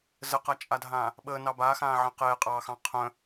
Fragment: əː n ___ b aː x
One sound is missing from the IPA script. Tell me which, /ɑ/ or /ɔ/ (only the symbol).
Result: ɑ